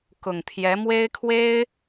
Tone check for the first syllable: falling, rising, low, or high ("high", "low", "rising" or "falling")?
low